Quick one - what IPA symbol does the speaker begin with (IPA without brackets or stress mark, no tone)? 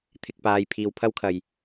t̪ʰ